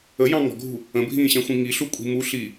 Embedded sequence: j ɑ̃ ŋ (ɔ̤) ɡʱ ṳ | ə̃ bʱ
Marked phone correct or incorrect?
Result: correct